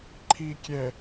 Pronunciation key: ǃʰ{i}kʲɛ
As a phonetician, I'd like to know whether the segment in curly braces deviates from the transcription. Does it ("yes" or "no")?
no